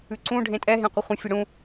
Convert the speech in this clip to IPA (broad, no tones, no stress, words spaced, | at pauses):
ʉǀũ ɖʱẽtʼɛ ɦẽqʷɪχʷə̃ fʲəɽũ